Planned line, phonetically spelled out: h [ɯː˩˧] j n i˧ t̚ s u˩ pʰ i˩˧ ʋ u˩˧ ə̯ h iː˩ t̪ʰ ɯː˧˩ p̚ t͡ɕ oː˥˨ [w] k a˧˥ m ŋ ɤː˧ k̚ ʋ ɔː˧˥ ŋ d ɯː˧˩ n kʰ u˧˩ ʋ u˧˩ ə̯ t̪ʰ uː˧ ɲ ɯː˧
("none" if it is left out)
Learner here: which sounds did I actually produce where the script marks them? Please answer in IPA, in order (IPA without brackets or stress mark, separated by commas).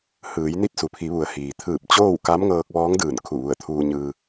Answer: ɯː˩˧, w